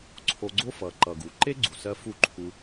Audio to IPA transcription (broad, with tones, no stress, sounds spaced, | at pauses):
ǀʰ o˧ ɡ͡ǀ o˦ f ʌ˨ ǃ ʌ˨ ɡ u˨ ǃ e˦ ɡ͡ǀ u˨ s ɜ˧ f u˦˨ ǃʰ u˧